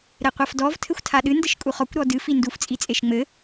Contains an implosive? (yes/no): yes